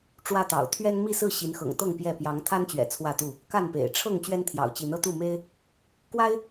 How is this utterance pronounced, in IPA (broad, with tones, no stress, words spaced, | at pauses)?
ʈ͡ʂwä˦t̪ɑ̰˨˩ʊ̯ t̪ʰɥɛ˦nmi˥˨sɹ̩˥˨ ɕi˨˦nxɤ̰˨˩ŋt̪ɤ˥˨ŋ pjɛ˥˨ pjɑ˨˦ŋt̪ʰa˦nt͡ɕɥɛ̰˨˩ t͡sʰwä˥˨t̪u˥˨ | ka˥˨npḛ˨˩ɪ̯ ʈ͡ʂʰɤ˥˨ŋ t͡ɕɥɛ˦nt̪ʰjɑ̰˨˩ʊ̯t͡ɕi˨˦nɤ˦ t̪u˥˨me˦ɪ̯ | kwa˦ɪ̯